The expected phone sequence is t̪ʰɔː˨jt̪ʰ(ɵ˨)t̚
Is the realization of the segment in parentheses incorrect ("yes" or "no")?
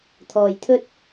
yes